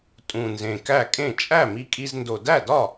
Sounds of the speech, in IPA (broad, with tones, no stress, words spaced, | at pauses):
tʼũ˨˩nzẽ˨˩kæ˥˩kʼẽ˥˩ t͡ʃʼæ˥˩mi˧kʼi˧zndo˨˩ dæ˥˩dɒ˥˩